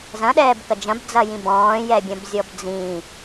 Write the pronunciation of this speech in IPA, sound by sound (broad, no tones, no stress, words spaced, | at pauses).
zɐ̃ɗɛːbkɐ d͡ʒɐ̃bd͡zɐjĩ bɔ̃ːjɛbʲɐ̃bzʲɔb d͡zĩ